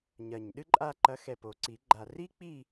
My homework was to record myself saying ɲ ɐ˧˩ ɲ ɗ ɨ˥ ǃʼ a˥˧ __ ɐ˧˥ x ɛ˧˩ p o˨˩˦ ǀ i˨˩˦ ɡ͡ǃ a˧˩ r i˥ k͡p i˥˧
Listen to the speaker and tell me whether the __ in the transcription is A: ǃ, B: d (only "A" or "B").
A